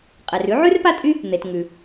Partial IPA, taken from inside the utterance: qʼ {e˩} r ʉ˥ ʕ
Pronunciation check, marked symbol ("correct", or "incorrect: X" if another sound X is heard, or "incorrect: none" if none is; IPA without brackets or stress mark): correct